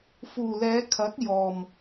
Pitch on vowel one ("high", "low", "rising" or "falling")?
low